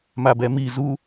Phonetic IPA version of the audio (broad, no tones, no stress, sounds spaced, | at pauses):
m a b ɛ m i z u